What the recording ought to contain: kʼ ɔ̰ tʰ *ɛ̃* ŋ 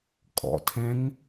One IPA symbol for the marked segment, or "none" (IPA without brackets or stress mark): ɛ̃